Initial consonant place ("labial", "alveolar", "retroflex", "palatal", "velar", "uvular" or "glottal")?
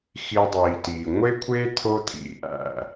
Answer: velar